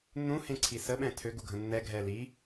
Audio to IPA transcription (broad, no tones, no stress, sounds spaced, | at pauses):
nː ũ h ẽ ǀʰ i s ə ɓ ɛ̃ tʰ ø ɡ u ɡʱ ə̃ nː ɛ ɡʱ ɛ l i